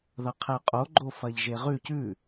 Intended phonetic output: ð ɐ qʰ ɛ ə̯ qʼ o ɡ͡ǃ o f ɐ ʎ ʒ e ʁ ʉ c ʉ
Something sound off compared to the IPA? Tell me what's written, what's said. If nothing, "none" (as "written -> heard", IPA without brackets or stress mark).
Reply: none